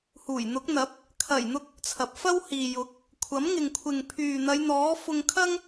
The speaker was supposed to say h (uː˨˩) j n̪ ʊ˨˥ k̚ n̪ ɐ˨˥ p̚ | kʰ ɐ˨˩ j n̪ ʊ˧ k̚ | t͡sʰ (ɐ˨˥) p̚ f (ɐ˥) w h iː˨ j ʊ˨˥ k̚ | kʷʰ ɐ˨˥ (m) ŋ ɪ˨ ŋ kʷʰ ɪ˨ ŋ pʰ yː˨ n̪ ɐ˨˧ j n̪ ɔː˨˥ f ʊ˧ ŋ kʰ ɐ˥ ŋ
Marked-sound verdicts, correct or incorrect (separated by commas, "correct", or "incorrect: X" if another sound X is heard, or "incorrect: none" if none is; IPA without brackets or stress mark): correct, incorrect: ɐ˨, correct, correct